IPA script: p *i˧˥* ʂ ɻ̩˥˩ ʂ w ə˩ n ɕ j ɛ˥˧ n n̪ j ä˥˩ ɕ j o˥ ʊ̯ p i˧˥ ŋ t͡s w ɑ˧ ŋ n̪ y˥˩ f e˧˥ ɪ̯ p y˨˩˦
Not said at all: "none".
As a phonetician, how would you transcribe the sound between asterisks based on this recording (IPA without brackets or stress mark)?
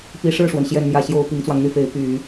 i˧˥